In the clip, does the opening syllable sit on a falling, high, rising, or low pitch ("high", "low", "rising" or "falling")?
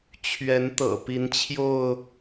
rising